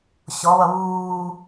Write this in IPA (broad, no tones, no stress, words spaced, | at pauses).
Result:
ɕɔβʌ βuː